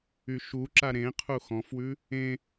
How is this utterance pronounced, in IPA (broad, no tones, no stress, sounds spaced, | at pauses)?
y ʃ u ǁ a ɾ ẽ qʰ u x ɔ̃ f w ʉ | ẽ